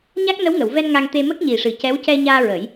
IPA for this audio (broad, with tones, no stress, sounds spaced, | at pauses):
ɲ a˦˥ k̚ n ə˧˥ w ŋ ə˨˩˨ w v ɛ˧ n ŋ a˧ ŋ t̪ e˧ m ə˦˥ k̚ ɲ i˨˩ ʂ ɨ˨˩ c ɛ˧˥ w c ɛ˧ ɲ aː˧ ɹ ə˨˩˦ j